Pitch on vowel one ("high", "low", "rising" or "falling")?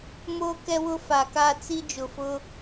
high